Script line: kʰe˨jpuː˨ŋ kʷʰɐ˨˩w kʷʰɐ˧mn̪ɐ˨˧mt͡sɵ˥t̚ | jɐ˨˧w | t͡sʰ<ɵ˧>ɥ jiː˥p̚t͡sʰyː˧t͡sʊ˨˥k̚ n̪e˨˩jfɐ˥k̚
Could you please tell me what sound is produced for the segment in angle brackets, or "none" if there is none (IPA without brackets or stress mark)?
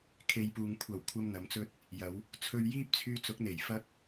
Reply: ɵ˧